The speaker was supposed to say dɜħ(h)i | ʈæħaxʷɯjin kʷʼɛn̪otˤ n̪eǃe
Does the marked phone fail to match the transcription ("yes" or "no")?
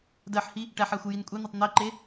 no